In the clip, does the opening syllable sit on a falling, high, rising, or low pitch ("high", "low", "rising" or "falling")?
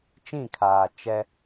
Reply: falling